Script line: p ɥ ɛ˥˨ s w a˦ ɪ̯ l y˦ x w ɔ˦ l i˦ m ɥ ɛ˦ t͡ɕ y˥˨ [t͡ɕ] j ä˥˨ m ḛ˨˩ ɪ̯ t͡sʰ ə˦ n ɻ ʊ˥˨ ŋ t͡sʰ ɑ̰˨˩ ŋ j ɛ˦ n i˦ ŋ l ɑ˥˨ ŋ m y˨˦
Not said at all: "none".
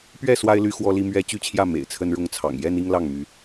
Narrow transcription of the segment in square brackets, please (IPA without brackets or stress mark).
t͡ɕʰ